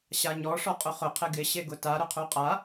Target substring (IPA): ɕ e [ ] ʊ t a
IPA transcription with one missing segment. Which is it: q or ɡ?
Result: ɡ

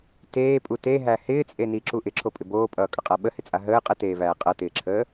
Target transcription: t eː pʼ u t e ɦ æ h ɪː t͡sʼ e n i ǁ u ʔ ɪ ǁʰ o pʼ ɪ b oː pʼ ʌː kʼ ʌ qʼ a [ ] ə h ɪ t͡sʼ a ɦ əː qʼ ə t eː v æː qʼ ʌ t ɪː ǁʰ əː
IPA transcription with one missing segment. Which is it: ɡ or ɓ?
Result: ɓ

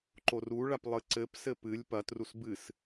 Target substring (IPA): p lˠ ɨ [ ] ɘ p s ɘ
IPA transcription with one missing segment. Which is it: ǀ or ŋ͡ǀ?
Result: ǀ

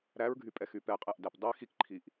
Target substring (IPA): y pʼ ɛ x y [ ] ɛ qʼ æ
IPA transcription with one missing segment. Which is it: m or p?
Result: p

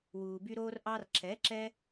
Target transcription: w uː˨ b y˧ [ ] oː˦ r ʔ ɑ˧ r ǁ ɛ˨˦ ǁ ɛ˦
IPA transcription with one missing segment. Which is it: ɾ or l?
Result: ɾ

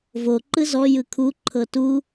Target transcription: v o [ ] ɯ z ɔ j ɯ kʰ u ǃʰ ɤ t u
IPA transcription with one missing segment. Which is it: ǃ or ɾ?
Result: ǃ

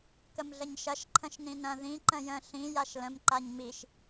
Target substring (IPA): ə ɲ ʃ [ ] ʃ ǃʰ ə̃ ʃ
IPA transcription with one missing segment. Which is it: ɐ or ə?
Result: ɐ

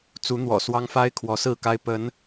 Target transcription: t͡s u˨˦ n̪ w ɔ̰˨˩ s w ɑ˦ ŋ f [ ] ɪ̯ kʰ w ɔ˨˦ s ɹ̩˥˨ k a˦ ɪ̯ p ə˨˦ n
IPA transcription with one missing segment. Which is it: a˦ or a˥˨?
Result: a˦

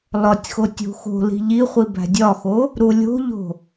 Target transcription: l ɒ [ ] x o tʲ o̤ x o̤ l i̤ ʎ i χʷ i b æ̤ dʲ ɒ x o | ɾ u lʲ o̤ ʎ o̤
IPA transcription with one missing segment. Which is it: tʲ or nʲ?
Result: tʲ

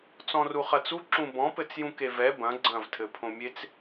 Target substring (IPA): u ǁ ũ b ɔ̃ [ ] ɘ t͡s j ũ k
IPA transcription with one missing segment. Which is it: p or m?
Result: p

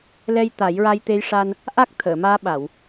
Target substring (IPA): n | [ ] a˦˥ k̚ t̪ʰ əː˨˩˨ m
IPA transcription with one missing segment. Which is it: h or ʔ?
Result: ʔ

